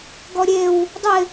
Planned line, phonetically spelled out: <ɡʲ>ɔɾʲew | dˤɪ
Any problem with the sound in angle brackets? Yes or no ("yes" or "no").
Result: yes